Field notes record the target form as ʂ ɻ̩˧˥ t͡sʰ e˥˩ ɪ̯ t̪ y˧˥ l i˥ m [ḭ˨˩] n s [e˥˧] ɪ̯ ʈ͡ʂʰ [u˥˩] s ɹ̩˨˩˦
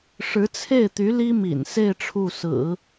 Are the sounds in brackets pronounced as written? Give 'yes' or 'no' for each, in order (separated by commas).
yes, yes, yes